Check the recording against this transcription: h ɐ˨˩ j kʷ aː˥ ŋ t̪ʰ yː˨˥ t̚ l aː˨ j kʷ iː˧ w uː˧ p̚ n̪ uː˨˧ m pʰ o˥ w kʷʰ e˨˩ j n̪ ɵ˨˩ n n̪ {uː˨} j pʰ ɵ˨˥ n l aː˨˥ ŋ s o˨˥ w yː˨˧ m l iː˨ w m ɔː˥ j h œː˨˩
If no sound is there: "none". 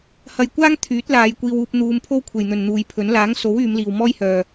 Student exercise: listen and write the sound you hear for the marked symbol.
uː˨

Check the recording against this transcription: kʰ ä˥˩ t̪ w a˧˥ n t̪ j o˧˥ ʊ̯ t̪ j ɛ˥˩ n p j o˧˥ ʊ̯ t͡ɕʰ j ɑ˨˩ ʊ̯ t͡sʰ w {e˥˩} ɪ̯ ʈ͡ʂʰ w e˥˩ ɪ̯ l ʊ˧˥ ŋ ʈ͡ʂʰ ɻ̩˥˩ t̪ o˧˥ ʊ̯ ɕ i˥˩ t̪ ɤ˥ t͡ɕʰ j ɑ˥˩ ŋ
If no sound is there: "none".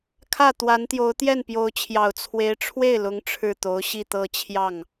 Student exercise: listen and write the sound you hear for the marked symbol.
e˧˥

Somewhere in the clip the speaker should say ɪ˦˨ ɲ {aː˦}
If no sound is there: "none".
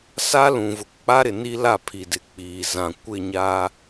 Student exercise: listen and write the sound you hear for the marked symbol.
aː˦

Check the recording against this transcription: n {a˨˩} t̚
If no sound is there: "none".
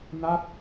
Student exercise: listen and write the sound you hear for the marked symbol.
a˥˩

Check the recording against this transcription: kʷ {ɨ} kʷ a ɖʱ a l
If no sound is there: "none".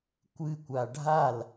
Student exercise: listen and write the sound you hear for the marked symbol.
ɨ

